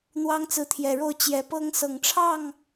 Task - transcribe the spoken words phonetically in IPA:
n̪ w ɑ˦ ŋ t͡s ɹ̩˨˦ t̪ʰ j ɛ˨˩ ɻ o˥˨ ʊ̯ t͡ɕ j ɛ˨˦ p ɤ˦ ŋ s ɤ˨˩ ŋ ʈ͡ʂʰ ɑ˥˨ ŋ

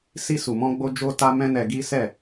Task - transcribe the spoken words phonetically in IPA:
s i˧ s u˨ m ɔ̃˧ ɡ͡b o˧ d͡ʒ o˧ t a˧ m ɛ̃˦ n ɛ˧ ɡ i˦ s ɛ˦˨

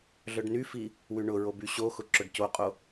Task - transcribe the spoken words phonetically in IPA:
ɮ œ ɖ n y f i | w y ɳ ʊ ɹ o b y ɕ o x ʊ ǁ œ ɖ c o qʼ o

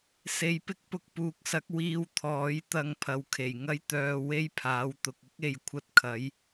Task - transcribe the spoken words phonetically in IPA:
s e˨˧ j p ɪ˥ k̚ p ʊ˧ k̚ p uː˨˥ k̚ s ɐ˨˥ k̚ w iː˧ w t̪ʰ ɔː˨˥ j t̪ ɐ˧ ŋ pʰ ɐ˨˧ w kʰ e˨˩ j ŋ ɐ˥ j t̪ œː˧ w e˥ j pʰ aː˨˥ w t̪ ʊ˧ k̚ ʊ˥ k̚ e˨˧ j kʷʰ ɐ˧ t̚ kʰ ɐ˨˥ j

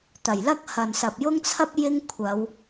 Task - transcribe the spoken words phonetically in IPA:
t̪ ɐ˨˩ j l ɐ˥ k̚ h ɐ˨ n s ɐ˨ p̚ j ʊ˥ ŋ t͡sʰ ɐ˥ p̚ j ɪ˥ ŋ kʷʰ ɐ˨˧ w

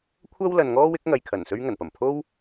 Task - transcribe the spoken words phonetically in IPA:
kʷʰ ɐ˥ w l ɐ˨ n ŋ ɔː˥ w ɪ˨˥ k̚ ŋ ɐ˨ j kʰ ɐ˨˩ n s ɵ˥ ɥ ŋ ɐ˨˩ n p ɐ˨˩ m pʰ o˥ w

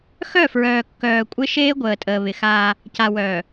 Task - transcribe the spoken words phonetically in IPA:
x œ˦˨ f ɹ œː˨ kː œː˨ kʷʼ ɪ˦ ʃ eː˦ ɡʷ əː˨ tʼ əː˨ β ɪ˨ x aː˦ | c a˨ w œː˨

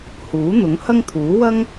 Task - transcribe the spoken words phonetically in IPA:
h uː˨˥ n̪ ʊ˨˥ ŋ h ɐ˥ ŋ t̪ʰ uː˨˥ w ɐ˥ ŋ

